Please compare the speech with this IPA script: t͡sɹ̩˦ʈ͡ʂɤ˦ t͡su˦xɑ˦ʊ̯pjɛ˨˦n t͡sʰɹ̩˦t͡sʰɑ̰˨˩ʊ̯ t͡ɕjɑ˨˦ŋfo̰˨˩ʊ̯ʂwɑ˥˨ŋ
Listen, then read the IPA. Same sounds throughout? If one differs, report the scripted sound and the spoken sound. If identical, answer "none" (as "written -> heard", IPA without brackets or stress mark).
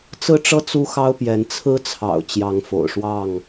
none